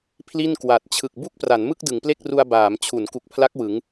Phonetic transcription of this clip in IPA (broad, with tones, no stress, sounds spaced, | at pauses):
pʰ l i˥˩ n k w a˨˩ t̚ t͡ɕʰ ɯ˨˩ k̚ b u˥˩ k̚ p r a˩˦ n m ɯ˥˩ k̚ d ɯ˩˦ ŋ p l e˥˩ k̚ r u˧ a̯ b aː˩˦ m t͡ɕʰ u˩˦ n k u˨˩ k̚ pʰ l a˦˥ k̚ w ɯ˩˦ ŋ